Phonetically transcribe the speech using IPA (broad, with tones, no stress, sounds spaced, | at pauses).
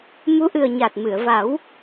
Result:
m u˧˥ ʔ ɨ˨˩ ə̯ ɲ a˨˩ t̚ m ɨ˨˩˨ ə̯ v a˨˩˦ w